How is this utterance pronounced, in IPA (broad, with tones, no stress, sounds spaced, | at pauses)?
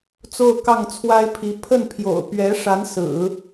t͡s o˥˧ ʊ̯ k ɑ˥˩ ŋ t͡sʰ w a˥ ɪ̯ pʰ i˧˥ pʰ ə˥˩ n pʰ j o̰˨˩ ʊ̯ p ɥ ɛ˧˥ ʂ a˧˥ n s ɹ̩˨˩˦